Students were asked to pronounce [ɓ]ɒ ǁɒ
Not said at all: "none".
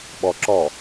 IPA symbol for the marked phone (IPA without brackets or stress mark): ɓ